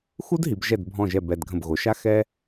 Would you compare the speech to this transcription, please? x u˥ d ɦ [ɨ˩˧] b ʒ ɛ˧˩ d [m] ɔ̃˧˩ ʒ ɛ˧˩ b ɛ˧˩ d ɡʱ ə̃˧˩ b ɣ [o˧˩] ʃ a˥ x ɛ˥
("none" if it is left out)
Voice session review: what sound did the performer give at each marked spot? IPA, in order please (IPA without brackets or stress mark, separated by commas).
i˩˧, bʱ, o˩˧